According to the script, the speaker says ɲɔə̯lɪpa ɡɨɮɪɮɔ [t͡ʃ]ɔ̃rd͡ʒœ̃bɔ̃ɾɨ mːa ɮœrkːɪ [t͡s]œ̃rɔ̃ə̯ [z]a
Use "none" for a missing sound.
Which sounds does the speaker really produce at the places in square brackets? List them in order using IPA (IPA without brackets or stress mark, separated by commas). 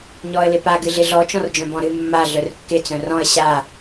t͡ʃ, t͡s, ɕ